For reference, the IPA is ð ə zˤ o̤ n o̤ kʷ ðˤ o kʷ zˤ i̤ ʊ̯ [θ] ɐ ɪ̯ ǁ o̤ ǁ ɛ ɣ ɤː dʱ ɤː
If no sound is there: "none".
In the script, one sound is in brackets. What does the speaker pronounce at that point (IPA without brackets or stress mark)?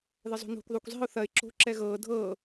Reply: θ